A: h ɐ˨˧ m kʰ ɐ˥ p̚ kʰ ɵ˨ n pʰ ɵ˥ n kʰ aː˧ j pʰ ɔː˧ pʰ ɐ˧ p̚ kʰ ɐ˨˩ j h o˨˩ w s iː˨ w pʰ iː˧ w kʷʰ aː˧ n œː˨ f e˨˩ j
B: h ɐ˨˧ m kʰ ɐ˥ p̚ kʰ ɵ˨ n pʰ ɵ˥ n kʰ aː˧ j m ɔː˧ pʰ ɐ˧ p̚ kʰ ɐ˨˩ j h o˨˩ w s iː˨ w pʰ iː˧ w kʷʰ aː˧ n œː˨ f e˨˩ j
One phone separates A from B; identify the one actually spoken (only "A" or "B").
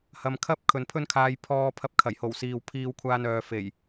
A